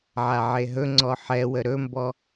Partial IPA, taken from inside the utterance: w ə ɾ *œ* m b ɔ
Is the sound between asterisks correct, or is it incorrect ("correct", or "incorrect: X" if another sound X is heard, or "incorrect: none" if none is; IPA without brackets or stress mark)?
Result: incorrect: ɵ